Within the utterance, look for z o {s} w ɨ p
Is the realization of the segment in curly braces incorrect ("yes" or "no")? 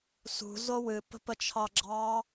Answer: yes